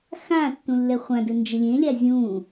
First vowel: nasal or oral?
nasal